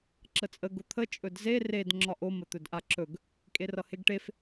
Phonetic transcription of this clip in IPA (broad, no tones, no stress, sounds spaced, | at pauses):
ǁ ə t͡sʼ ə ɡ ʊ t̪ʰ ə t͡ʃʼ ɵ d z e r e d ŋ͡ǁ ɒ ʔ o m ə t̪ ɵ d ʔ a ǁ ɵ ɡ | kʼ e r ʌ h e ɡ ʈ e f